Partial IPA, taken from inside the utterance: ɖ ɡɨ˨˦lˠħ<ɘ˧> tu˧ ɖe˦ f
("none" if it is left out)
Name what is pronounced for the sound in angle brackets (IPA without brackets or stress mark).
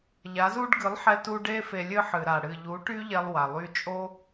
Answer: ɛ˧